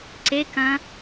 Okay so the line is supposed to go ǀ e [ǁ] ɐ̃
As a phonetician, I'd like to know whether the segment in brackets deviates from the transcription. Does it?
yes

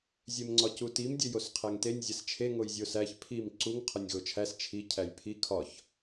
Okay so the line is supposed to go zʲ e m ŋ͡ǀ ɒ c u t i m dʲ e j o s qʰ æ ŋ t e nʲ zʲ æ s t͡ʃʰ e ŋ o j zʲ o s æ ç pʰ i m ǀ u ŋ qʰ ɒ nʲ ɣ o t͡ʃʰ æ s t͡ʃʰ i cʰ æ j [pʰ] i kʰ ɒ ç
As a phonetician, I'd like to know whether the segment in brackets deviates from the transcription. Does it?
no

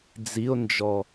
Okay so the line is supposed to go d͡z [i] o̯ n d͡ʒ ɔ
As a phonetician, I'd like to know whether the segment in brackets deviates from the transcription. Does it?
no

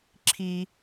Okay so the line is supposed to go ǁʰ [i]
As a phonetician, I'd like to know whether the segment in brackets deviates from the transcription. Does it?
no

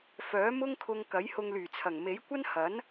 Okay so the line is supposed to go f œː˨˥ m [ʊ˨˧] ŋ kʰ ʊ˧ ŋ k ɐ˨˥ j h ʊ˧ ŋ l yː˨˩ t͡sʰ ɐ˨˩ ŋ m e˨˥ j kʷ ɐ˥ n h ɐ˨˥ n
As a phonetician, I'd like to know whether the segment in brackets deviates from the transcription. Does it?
yes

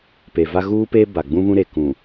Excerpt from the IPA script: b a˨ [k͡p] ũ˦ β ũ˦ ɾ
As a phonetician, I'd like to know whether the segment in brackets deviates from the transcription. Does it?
yes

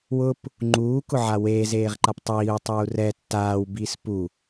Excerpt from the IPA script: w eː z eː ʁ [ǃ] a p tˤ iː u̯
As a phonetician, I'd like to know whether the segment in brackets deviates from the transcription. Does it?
no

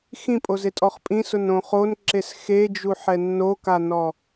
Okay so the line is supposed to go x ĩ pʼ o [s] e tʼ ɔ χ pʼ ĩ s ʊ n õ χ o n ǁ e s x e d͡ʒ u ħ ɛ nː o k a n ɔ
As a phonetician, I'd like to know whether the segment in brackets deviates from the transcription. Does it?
yes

